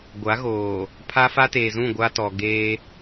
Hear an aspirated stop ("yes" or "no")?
yes